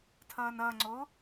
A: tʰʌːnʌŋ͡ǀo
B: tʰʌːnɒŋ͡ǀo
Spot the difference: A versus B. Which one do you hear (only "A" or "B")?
A